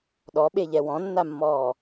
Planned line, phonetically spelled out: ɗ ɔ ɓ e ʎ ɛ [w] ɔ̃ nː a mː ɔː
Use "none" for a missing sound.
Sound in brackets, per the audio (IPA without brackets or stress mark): w